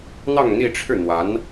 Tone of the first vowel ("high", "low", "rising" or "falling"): falling